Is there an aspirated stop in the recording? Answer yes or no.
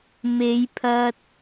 yes